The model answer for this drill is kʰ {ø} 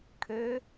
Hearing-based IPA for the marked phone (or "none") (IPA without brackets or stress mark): ø